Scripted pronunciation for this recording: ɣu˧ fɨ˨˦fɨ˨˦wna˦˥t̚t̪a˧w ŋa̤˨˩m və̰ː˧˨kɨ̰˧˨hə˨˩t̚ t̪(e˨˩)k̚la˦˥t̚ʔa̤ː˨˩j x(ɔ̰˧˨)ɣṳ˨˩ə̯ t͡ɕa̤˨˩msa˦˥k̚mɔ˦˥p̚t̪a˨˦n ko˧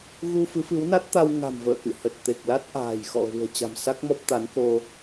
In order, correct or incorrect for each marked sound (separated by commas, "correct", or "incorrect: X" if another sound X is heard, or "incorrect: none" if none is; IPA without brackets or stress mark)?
correct, correct